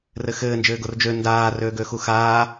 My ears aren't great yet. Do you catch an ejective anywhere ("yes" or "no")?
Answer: no